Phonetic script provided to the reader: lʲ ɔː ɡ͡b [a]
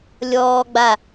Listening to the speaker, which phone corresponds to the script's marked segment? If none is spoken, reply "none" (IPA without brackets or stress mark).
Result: a